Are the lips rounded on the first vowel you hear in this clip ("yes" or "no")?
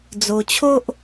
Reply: yes